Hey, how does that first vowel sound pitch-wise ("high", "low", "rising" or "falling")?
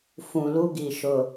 low